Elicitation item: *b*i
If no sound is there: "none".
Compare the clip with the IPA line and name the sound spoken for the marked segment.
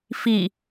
f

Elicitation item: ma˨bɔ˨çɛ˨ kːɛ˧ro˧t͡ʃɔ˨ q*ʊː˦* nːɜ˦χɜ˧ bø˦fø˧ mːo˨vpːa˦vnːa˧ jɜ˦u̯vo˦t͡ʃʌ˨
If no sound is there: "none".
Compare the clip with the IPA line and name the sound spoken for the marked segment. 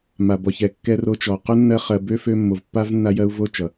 ʊ˦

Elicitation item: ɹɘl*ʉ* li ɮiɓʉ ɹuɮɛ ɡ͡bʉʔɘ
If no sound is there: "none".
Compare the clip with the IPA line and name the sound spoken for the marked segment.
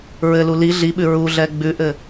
u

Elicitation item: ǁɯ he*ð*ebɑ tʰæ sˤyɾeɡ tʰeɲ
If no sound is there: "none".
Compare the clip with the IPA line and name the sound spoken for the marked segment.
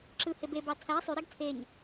b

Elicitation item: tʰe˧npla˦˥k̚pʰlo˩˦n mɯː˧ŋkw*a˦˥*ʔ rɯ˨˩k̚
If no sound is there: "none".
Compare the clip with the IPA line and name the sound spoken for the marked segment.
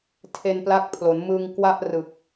a˥˩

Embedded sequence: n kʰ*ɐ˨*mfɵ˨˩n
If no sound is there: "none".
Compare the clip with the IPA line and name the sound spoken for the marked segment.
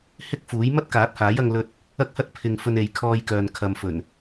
ɐ˨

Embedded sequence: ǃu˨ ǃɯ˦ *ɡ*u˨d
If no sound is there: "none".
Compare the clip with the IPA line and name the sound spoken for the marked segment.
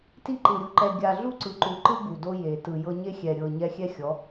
ɡ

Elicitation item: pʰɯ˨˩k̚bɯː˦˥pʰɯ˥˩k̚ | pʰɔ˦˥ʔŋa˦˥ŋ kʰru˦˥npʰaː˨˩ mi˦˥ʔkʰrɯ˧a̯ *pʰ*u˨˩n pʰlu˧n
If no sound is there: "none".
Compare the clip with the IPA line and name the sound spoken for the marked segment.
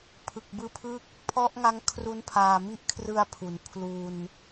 pʰ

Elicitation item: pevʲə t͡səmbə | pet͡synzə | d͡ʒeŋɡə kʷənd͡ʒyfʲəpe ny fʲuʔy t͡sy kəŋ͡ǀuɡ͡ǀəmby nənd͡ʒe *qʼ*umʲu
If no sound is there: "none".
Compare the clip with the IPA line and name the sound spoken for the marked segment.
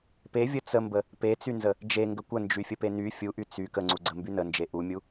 ʔ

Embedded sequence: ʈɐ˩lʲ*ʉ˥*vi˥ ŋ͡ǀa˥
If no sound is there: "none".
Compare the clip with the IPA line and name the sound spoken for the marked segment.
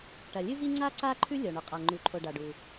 ɨ˥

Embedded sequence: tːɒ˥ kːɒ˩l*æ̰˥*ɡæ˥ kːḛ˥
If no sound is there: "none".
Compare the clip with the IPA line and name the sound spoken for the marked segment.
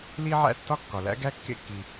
æ̰˥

